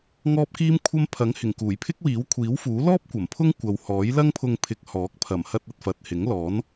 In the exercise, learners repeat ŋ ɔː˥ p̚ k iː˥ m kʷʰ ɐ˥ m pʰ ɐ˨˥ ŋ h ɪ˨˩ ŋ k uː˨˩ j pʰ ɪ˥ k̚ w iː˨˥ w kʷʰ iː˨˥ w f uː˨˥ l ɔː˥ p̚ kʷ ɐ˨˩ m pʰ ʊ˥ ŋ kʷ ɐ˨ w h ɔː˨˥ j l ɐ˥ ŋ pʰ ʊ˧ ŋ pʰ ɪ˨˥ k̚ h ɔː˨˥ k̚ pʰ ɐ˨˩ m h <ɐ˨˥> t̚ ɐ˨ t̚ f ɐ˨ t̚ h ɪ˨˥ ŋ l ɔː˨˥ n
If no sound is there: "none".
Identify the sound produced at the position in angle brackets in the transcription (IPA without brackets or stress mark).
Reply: ɐ˧